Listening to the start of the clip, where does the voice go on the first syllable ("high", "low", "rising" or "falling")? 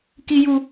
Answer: high